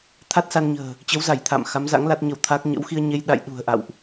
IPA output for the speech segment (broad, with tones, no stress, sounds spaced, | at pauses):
t̪ʰ a˦˥ t̚ s a˧ n ɲ ə̤ː˨˩ | t͡ɕ ə˨˦ w z a˧˩ j t̪ʰ a̰ː˧˨ m x a˨˦ m z a̰˧˥ ŋ l a˦˥ t̚ ɲ ə˧ w t̪ʰ a˦˥ k̚ ɲ ə̰˧˥ w x i˧ ə̯ ɲ e˧ j ɗ a̰˧˨ j ɗ ṳ˨˩ ə̯ ʔ a̰˧˨ w ʔ